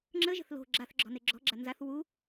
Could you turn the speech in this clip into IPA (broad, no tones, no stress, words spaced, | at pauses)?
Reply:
ŋ͡ǁəʒə̤θ lo̤ ɡ͡ǁaθɡ͡ǁɔ̤ne ɡ͡ǁɔ̤ɡ͡ǁa nzaθ wu